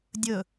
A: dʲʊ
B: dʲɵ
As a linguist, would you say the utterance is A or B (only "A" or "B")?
B